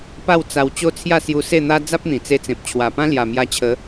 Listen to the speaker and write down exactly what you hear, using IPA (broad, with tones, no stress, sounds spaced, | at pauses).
p a˥˧ w t͡s a˧ w t͡ɕ o˦ t͡sʰ j a˥˧ s j u˧ s e˥˧ n̪ a˦ d͡z a˦ p̚ n̪ ĩ˨˩ t͡s e˧ t͡s ẽ˨ p̚ t͡ɕʰ w a˨˩ p ã˦ l j a˨˩ m j a˧ t͡ɕʰ ə˨˦